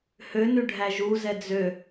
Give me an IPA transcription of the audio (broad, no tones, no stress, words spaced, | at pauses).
hønʉ ɖʱæʒuzɛ d͡zø